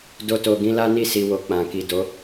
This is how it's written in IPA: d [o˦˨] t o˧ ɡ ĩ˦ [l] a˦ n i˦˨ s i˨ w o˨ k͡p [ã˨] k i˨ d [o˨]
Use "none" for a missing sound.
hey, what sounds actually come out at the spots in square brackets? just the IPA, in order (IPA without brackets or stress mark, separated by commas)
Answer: o˦, l, ã˨, o˨˦